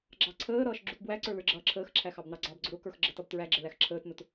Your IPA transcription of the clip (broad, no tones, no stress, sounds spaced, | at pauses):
ɡ͡ǁ ɑ ǀʰ əː ɾ ʌː ʃ ɡ͡ǁ u t b w æ ǀ ə˞ l ə˞ ɡ͡ǁ ʌː ǁʰ əː x ǁʰ æ x ɑ b n ɑ ɡ͡ǀ ɑ b ɡ͡ǀ ʊ ɾ ʊ k ə˞ x ɡ͡ǁ ə t ʌ b t ɹ æ ɡ͡ǁ ə l æ x ǁʰ əː t n ʊ t